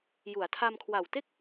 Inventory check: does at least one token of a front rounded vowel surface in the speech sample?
no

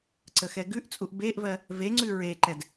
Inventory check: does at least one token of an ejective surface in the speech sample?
yes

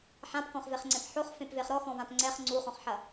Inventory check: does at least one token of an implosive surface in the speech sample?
no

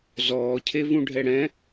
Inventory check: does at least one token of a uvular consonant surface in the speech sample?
no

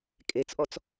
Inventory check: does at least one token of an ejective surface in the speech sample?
yes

